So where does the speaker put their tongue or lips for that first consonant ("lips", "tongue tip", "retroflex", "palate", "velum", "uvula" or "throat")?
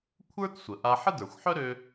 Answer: velum